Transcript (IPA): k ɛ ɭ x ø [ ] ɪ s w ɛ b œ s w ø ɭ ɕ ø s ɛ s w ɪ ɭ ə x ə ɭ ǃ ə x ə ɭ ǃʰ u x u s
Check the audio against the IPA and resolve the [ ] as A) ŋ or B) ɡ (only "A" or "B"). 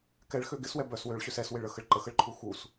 B